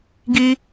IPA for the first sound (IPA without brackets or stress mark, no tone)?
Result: ɡ